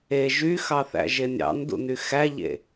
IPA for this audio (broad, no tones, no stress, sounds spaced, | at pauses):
e ʒ y x ɑ θ æ̰ ʒ e nʲ ɑ̰ n d ṵ n y x æ ʎ ḛ